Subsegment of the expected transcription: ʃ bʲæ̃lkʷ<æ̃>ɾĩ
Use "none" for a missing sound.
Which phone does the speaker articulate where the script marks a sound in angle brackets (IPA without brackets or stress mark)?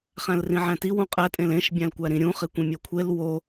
æ